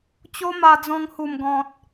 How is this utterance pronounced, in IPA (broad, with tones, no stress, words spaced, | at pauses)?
t͡ɕo˦ma˧d͡zɔ̃˧ŋ hu˨˩mɡɔ̃˨t̚